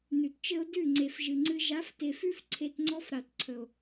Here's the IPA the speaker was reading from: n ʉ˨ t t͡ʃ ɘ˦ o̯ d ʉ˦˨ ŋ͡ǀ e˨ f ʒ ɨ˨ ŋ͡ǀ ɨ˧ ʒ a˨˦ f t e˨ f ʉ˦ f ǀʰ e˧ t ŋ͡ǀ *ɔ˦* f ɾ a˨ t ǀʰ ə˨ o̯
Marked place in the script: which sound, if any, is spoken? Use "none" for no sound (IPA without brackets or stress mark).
ɔ˦